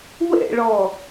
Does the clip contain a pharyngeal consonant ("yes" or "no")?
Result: no